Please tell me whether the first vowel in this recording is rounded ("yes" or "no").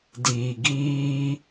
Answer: no